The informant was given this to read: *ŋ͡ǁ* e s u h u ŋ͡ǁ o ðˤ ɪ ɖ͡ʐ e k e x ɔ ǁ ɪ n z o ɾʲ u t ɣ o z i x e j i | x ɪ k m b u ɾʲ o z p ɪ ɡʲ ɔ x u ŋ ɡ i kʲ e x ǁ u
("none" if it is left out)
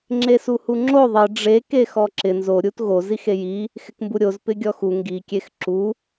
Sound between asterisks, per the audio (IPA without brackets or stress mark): ŋ͡ǁ